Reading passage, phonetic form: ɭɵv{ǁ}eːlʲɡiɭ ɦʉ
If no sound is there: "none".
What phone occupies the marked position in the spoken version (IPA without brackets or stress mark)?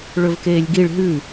k